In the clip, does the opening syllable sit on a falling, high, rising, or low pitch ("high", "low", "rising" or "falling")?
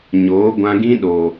rising